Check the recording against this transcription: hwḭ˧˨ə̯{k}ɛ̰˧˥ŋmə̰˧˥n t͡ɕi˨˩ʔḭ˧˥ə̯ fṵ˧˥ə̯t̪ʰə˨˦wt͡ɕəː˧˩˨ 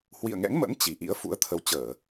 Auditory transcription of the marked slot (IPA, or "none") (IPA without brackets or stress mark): ŋ